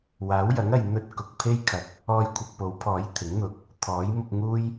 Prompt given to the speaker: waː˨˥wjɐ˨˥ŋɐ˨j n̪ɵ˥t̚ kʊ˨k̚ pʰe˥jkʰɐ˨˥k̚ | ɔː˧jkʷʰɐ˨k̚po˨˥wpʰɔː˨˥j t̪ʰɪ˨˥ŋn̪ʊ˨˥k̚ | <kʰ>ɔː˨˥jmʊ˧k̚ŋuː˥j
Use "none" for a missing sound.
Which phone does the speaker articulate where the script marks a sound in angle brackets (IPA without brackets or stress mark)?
t̪ʰ